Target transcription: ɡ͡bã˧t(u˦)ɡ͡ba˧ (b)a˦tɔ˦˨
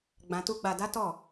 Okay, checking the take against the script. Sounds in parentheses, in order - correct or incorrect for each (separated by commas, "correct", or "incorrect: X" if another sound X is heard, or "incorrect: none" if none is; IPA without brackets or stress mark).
correct, incorrect: d